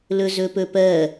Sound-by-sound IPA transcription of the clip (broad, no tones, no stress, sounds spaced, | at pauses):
l ɵ z ɵ p ɵ p ɜ